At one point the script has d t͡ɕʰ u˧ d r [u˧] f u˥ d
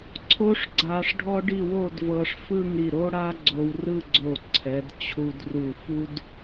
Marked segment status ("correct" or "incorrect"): incorrect